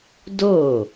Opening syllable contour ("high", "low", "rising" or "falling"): falling